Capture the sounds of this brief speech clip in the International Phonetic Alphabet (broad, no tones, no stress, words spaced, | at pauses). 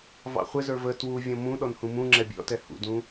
vɑ̰χʷɪzə˞ və twu vʲɔ̃mũɗɔnhũ mũ ŋ͡ǁɛbʲɔ̰tɛ hṵdũ